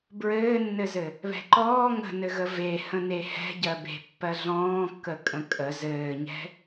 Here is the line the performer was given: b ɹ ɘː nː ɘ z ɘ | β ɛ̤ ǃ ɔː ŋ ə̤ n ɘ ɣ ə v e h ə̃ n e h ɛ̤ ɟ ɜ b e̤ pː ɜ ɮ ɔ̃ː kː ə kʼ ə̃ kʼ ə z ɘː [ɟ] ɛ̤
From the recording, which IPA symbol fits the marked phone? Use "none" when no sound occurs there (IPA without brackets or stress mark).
ɲ